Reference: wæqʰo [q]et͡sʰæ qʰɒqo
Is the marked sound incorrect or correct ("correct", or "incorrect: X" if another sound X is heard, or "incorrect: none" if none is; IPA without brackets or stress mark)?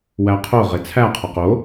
incorrect: ʁ